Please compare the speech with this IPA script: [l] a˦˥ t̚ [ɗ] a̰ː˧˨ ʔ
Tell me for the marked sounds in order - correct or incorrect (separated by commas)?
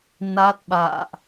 incorrect, incorrect